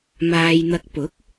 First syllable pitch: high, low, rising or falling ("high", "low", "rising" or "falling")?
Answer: low